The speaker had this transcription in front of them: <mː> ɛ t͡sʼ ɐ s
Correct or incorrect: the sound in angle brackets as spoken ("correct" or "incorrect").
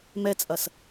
incorrect